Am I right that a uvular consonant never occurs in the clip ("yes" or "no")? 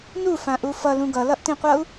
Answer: no